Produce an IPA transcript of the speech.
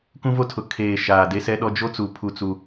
k ũ˦ v o˦ tʰ ʊ˨ kʰ eː˨ ʃ aː˨ d e˦ s ɛ˦ ɗ ɔ˦ d͡ʒ o˦ t͡s u˨ pʰ u˦ t͡s u˦

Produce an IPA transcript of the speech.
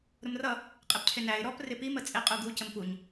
ɾ ʊ m r ʌ | qʼ ɪ p cʰ ɪ n æ ɪ̯ ɾ ɔ p r ɪ p i m ə t͡sʼ ɪ qʼ u ɡ u c ə m p u ɲ

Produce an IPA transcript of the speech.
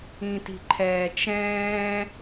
ĩ t i̤ ǃʰ ɛː t͡ʃ ɛ̃ː

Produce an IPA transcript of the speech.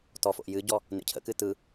t ɔ f o̰ ʔ j ɨ ɟ ɔ | n ḛ cʰ ə̰ k ɨ t ɯ

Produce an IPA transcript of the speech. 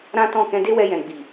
ɾ ã˦ t ɔ̃˦˨ k ɛ̃˧ d e˦ w ɛ˧ j ɛ̃˨ ɡ͡b i˨

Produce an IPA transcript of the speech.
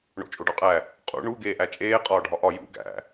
ɳ o̰ t͡ʃʼ o ɖ ɒ qʼ æ | qʼ ṵ ɳ u ɡ eː ʔ æ t͡ʃʼ eː qʼ ɒː ɖʱ ɒ ʔ ɒ j ṵ ɡ æ̰

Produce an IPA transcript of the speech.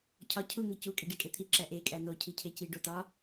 cʰ ɒ cʰ u ŋ e c u kʼ e ɖ i kʼ e t̪ʰ i ǁ æ ʔ e kʼ æ n o cʰ i cʰ e c i ɖ o t ɒ

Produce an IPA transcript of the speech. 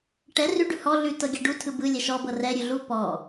ʈ ɛ r ʉ ɖ ʉ h ɔ ɮ ʉ t ɤ ɡʲ a ɖ u tʰ ɯ b ɯ lʲ ɛ ʃ ɔ b ɤ r ɛ ɾʲ ʉ ɮ u p ɔ

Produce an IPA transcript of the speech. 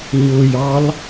ɲ ʊ j ɑ l

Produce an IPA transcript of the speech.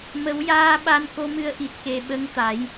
m ə˨˩˦ w j aː˧ ɓ a˧ n k o˧˥ m ɨ˧˥ ə̯ ʔ i˨˩ t̚ k e˨˩ ɓ ə˧˥ ŋ t̪ a˨˩˦ j

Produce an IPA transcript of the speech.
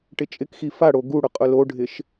ʈ ɪ t͡ʃʼ ɪ k x i f a ɽ o ɡ u ɽ ʊ qʼ ʊ l o ɖʱ ɪ ʃ

